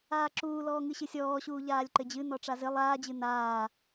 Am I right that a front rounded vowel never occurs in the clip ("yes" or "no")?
yes